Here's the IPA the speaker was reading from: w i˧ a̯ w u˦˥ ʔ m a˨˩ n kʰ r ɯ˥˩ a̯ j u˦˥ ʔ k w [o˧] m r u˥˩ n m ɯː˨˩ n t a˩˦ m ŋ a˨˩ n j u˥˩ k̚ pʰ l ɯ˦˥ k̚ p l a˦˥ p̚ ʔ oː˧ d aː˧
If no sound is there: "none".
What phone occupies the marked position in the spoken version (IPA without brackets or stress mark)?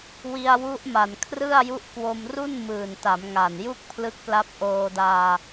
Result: o˧